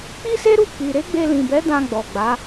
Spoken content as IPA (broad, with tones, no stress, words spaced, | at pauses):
k͡pi˦se˦ɾu˦˨ k͡pi˨ ɾe˨˦ɡ͡be˧lĩ˨bɛ˨˦ dã˧ ɡ͡bɔ˨ɡ͡ba˨˦